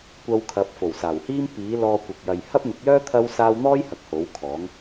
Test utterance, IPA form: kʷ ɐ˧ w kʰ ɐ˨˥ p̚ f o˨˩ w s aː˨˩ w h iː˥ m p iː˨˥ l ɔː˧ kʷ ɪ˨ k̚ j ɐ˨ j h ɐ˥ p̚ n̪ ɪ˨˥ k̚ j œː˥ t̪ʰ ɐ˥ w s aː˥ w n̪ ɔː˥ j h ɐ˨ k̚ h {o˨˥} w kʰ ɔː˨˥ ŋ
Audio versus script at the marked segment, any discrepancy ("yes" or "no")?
no